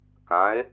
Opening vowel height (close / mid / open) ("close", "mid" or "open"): open